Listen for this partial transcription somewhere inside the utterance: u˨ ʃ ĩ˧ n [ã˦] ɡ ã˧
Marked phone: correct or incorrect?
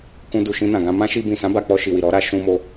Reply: incorrect